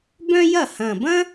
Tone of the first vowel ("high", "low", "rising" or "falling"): high